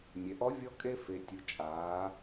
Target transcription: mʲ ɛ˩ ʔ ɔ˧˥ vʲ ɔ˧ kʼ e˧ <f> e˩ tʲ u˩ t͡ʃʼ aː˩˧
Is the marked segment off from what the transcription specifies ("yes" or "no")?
no